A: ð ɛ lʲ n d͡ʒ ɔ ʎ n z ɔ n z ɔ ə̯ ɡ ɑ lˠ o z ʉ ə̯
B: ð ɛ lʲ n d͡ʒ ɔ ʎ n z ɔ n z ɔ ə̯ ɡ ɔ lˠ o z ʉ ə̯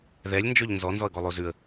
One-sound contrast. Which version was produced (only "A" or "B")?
B